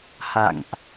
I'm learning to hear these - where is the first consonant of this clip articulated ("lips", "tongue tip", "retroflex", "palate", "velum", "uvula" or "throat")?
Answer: throat